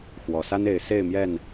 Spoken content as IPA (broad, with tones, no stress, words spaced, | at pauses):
xwɔ˨˩sa˦ne˨˦ɪ̯ se˥˨ɪ̯mjɛ˥˨n